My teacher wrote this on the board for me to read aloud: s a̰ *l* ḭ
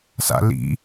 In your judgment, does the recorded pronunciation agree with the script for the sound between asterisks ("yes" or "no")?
yes